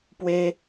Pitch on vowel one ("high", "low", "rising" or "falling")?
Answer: high